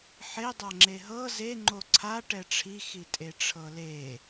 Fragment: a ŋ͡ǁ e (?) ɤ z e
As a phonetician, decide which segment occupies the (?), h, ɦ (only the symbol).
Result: ɦ